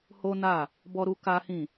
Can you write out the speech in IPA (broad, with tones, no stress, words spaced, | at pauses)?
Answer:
ho˦na˦˨ | bɔ˦ɾu˦ ka˦hĩ˦˨